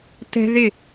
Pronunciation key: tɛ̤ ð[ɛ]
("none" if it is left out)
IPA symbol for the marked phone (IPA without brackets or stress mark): ɪ